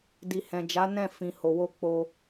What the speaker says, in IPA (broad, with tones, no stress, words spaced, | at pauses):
di˨hɛ̃˨d͡ʒa˨˦ nɛ̃˦˨ fĩ˨ho˨wo˧ k͡po˧